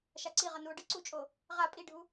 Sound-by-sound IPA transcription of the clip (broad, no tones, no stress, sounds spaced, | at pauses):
ʃ a ǀ i ʁ ʌ n u o̯ ɖ ɯ ǀ u t͡ʃʼ o | ʁ a pʼ i ɖʱ u